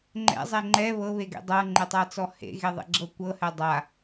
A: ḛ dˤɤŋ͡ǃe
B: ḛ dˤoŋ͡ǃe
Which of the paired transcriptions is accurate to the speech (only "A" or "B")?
A